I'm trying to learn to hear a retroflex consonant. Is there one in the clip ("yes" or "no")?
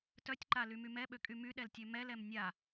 no